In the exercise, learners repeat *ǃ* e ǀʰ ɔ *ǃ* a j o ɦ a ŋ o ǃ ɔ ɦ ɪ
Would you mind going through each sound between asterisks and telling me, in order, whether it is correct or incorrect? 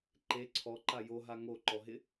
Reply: correct, correct

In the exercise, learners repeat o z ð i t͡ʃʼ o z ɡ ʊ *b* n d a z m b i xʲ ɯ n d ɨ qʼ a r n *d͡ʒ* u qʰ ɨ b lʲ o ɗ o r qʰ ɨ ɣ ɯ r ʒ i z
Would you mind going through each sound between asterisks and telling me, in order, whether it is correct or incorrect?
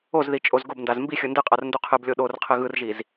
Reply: correct, incorrect

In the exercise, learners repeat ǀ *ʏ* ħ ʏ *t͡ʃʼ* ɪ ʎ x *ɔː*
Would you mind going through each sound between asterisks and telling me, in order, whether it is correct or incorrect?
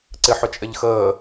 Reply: incorrect, correct, incorrect

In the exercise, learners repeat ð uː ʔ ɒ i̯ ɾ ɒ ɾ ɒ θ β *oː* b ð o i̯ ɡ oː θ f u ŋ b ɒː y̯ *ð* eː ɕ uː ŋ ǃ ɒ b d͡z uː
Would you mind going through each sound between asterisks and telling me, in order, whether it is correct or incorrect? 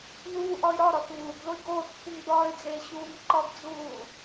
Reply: incorrect, incorrect

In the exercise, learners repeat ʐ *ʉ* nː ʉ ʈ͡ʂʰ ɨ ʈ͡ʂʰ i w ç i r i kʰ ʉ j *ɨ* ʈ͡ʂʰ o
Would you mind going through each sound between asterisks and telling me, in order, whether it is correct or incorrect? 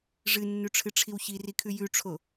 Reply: incorrect, incorrect

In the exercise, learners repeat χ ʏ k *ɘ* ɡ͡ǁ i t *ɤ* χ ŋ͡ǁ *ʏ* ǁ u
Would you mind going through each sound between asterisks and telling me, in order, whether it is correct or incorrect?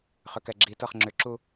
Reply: incorrect, correct, correct

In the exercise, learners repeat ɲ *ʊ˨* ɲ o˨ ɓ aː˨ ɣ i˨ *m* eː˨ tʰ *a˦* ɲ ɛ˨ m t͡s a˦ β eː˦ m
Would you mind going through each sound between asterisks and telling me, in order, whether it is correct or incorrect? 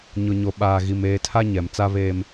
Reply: correct, correct, correct

